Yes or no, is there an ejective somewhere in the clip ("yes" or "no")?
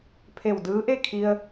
no